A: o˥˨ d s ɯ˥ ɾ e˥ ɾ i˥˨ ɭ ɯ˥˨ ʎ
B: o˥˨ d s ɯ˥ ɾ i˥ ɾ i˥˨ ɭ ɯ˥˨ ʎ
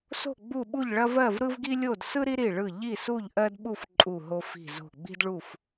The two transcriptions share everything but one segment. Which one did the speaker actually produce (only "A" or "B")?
B